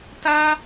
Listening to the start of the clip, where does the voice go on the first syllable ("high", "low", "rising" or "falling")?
high